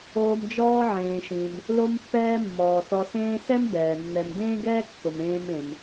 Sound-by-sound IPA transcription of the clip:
oː˨ m d͡ʒ ɔː˦ ʕ ẽː˩ ʃ ĩ˩ m | l o˦ m pː ɛː˦ mː ɔː˩ s ɔ˨ s ẽː˦ s ɛ˥ m b ɛː˩ nː ɛ˨ m d ẽː˥ ɡ ɛː˥ kː ʊ˨ m ẽː˦ m ẽ˨ m

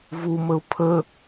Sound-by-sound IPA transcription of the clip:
v u m ə ʊ̯ pʰ ə

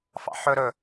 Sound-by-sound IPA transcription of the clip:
f ɑ̰ ħ ɵ ɾ ɵ

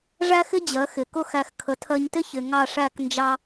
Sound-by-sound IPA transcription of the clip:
ʐ æ˥ x ɪ˥ d͡ʑ ɜ˩˥ x ɪ˩ k ʊ˧ x æ˧ x kʰ ə˩˥ tʰ ɜ˧ ɲ t ɪ˥ ç ɪ˩ ŋ ɑ˥˩ ʂ æ˥˩ k n d͡ʒ ɑ˧

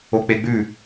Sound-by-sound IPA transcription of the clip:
o k͡p e ɡ͡b ʉ

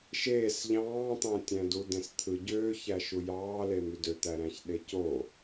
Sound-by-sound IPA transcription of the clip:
ʃ eː s ʎ ɑ̃ː t̪ ɑ̃ tʲ æ̃ d u d ẽ s t̪ʰ ɯ ɟ øː ç æ ʃ u j ɑː l e m y d ø t̪ æ ɾ æ̃ ç ɗ e c o

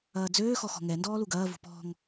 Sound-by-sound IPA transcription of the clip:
ɐː d͡z øː x ɔ x ɔ̤ ŋ ɛ n d ɔː l u ɡ ɐː v ṳ p ɔ̤ ŋ

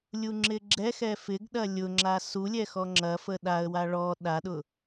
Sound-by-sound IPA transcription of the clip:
lʲ u ŋ͡ǁ ɪ ɡ͡ǁ ɛ x ɛ f ɪ ɡ ɗ ɐ lʲ ʊ ŋ͡ǁ a s u lʲ ɛ x ɔ ŋ͡ǁ ɐ f ə ɗ a ə̯ w a ɭ ɔ ɗ a ɗ ʊ

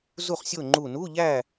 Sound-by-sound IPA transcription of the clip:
z u˥˨ χ sʲ o˥˨ ŋ͡ǃ u˧˩ n u˧˥˧ ʎ æ˥˨

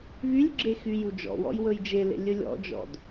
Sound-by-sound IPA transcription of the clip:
v y lʲ ɡ͡ǁ e x y j u d͡ʒ ɔ̰ w ɔ̰ j w ɵ j d͡ʒ e l ḛ lʲ ɵ lʲ ɔ̰ d͡ʒ ɔ̰ d

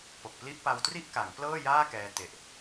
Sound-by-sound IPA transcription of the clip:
p o˨˩ k̚ p l i˦˥ ʔ p a˧ w t r i˥˩ ʔ k a˩˦ ŋ p l ɤː˥˩ j aː˥˩ k ɛː˧ t e˨˩ ʔ

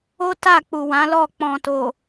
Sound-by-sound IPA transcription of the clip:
o˦ t a˦˨ k͡p u˨ w ã˨˦ l ɔ˦˨ k͡p ɔ̃˨ t o˨

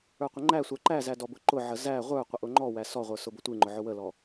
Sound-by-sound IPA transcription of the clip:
ə˞ qʷ ɪ ŋ͡ǃ æ sʷ æ ǃ æ z æ d ɔ b ʊ ǃ ʊ ʕ ə z æ ʁʷ ə˞ qʷ ə ʔ ʊ ŋ͡ǃ ɔ w æ s ɔ ʁʷ ə˞ s ʊ b ʊ tʷ i ŋ͡ǃ ʊ ʕ ʊ w ə l ɔ

